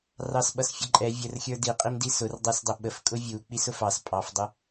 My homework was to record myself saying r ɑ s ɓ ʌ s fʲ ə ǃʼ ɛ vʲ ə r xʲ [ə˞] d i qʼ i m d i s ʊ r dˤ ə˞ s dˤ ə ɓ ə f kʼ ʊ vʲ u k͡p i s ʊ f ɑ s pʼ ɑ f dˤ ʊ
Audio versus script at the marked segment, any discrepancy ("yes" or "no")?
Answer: no